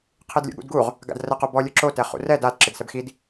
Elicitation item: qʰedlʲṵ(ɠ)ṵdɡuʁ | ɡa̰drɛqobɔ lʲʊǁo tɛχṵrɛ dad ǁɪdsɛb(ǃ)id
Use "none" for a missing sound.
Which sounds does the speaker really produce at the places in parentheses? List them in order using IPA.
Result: ɠ, x

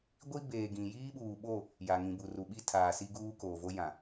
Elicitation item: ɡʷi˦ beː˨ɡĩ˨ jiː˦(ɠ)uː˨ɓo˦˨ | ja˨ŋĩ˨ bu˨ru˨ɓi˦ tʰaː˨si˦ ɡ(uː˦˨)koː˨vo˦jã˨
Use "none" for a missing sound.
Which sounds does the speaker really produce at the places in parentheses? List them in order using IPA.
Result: ɓ, uː˦

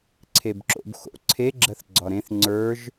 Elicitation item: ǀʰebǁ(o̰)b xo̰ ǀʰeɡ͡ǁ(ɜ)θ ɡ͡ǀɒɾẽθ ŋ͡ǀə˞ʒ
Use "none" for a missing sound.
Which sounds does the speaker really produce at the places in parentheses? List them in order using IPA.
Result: o̰, ɜ

